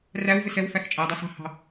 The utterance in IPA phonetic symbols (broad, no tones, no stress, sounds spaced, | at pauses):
r æ w v ɪ s ɛ w f æ x t͡ʃʼ æ dˤ ɑ s ɑ̤ h ɑ̤